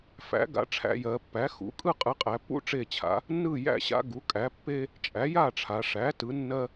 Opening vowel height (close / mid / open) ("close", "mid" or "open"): open